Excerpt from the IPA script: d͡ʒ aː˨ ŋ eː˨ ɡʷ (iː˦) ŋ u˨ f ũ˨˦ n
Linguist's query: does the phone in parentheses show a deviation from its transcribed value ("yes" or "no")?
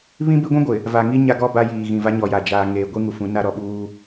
yes